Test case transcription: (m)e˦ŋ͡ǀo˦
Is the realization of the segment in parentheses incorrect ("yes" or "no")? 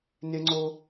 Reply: yes